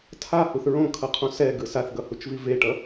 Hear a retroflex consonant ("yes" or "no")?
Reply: yes